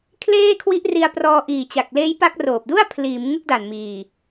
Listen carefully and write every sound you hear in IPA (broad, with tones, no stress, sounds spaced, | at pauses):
kʰ l eː˥˩ kʰ w i˦˥ ʔ r i˧ a̯ p r ɔː˧ ʔ iː˨˩ t͡ɕ a˨˩ k̚ l eː˦˥ j p a˦˥ k̚ r oː˨˩ p̚ d u˥˩ a̯ pʰ l iː˩˦ m ŋ ɯ˦˥ k̚ d a˨˩ n m iː˨˩